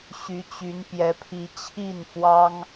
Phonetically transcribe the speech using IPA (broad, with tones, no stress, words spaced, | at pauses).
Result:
ɕy˧˥t͡ɕy˧˥n pjɛ˧˥pʰi˧˥ t͡ɕʰi˥˩nfwɑ˥ŋ